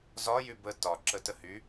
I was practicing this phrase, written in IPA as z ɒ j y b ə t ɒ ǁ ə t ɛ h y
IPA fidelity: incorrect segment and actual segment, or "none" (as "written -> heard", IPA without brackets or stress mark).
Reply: ɛ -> ə